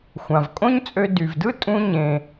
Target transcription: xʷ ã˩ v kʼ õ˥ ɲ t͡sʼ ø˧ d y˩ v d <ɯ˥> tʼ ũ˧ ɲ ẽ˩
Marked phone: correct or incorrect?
correct